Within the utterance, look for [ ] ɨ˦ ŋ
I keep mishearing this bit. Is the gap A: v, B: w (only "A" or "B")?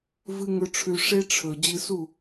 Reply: A